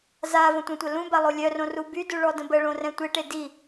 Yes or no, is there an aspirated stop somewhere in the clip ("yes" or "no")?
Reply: no